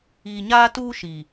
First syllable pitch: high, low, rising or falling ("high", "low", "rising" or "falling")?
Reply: low